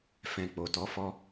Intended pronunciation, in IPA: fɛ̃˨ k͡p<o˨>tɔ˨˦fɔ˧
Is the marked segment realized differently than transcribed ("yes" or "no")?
no